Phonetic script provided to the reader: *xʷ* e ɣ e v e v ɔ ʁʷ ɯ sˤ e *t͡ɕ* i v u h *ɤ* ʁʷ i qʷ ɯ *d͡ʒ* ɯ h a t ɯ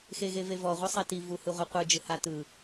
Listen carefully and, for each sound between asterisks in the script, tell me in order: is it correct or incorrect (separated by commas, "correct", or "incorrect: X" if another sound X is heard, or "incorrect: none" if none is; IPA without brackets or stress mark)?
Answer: incorrect: x, incorrect: t, incorrect: ɯ, correct